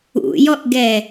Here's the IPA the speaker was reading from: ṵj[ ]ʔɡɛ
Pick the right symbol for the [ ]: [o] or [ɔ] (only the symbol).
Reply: ɔ